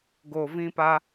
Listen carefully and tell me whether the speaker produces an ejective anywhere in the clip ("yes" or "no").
no